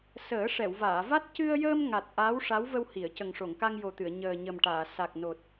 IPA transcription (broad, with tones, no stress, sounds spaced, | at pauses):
s əː˨˩˦ ʂ ɛ˨˩˨ w v aː˨˩˨ v a˦˥ t̚ c ɨ˧ ə̯ j əː˧ m ŋ a˨˩ t̚ ʔ aː˧˥ w ʂ a˧˥ w v ə˧ w h i˨˩˨ ə̯ c ə˨˩ ŋ ʂ o˨˩˨ ŋ k a˧ ŋ j o˨˩ t̪ ɨ˨˩˨ ə̯ ɲ əː˨˩ ɲ ə˨˩ m ʈ aː˨˩˨ s a˨˩ k̚ n o˨˩ t̚